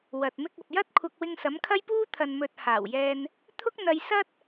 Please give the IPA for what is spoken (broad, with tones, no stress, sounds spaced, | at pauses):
w ɐ˨ t̚ m ɪ˧ k̚ ɐ˨ p̚ j ɐ˥ t̚ kʷʰ ɐ˧ k̚ w ɪ˧ ŋ s ɐ˨˥ m kʰ ɐ˥ j p uː˥ t̪ʰ ɐ˨ n m ɵ˨ t̚ h aː˨˩ w j ɛː˧ n | t̪ʰ ʊ˥ k̚ n̪ ɐ˧ j s ɐ˥ t̚